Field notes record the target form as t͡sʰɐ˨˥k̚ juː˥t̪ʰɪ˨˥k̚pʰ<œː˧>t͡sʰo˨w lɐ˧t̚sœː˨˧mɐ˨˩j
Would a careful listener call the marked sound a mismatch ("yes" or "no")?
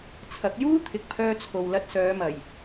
no